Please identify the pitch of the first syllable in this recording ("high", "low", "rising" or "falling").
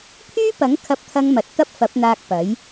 high